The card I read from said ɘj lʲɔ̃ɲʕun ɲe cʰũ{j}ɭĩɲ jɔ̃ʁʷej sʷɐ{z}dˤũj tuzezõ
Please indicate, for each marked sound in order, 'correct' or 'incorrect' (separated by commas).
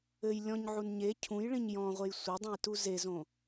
correct, incorrect